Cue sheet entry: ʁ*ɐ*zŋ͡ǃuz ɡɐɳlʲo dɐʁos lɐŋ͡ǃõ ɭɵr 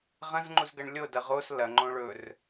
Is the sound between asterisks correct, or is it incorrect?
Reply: incorrect